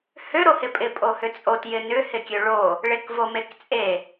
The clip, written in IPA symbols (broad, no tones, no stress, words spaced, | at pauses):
hø ɾohɪpʼɪ pʼohʏt͡sʼot jɪnʏ hɪkʲøɭo | ɭekvomekt͡sʼe